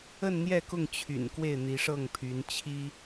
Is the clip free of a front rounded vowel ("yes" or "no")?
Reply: no